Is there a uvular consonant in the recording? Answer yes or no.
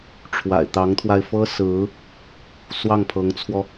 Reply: no